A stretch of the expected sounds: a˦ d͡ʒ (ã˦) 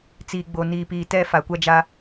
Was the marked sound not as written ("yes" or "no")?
yes